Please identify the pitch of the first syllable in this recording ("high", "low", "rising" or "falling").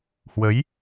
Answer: rising